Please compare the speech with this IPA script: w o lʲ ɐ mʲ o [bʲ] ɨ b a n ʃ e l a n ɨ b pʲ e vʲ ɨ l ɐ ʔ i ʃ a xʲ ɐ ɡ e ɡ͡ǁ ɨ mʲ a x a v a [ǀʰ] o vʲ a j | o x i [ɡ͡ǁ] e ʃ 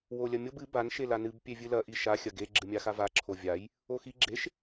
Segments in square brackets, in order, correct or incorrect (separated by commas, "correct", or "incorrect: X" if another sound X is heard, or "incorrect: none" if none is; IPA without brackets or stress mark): incorrect: b, incorrect: ǁʰ, correct